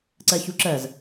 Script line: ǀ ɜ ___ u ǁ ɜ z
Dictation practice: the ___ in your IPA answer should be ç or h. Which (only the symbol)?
ç